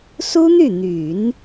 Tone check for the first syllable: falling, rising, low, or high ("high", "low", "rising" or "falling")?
high